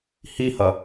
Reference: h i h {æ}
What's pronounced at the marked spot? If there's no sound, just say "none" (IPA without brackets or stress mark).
ɐ